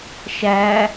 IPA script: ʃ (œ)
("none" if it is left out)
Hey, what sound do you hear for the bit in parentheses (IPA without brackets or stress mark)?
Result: æ